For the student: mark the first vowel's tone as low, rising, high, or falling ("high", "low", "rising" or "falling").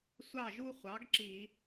falling